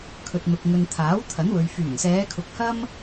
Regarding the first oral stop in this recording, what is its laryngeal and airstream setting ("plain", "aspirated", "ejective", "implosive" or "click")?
aspirated